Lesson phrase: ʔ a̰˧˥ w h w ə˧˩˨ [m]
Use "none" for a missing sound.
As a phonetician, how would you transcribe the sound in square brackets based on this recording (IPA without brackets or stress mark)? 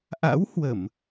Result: m